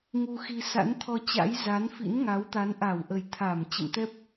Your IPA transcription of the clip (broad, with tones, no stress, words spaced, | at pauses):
ŋu˧xi˧ sa̰˧˥nt̪ʰɔ˧t͡ɕa̰˧˥j za˨˦nfḭ˧˥n ŋa˨˦wt̪a˨˦n ʔa˧˩wʔə˨˩j t̪ʰa˧˩m t͡ɕə̰˧˨mt̪ɛ˦˥p̚